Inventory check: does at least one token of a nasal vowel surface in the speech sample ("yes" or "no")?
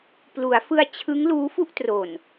no